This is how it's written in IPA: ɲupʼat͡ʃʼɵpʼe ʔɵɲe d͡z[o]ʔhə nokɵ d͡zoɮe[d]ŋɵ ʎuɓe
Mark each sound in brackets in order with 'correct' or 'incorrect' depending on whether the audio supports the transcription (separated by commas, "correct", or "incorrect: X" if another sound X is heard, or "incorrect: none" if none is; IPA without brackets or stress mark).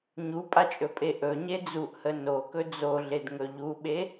incorrect: u, correct